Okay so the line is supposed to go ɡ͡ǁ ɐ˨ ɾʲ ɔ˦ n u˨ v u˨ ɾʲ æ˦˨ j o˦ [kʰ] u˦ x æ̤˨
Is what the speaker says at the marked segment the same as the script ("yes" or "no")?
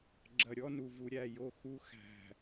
no